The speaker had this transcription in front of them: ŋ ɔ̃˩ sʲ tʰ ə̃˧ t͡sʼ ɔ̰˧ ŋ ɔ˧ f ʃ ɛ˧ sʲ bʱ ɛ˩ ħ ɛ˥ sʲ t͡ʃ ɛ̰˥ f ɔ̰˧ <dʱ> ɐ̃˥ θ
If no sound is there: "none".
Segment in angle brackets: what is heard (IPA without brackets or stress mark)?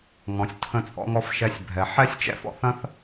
θ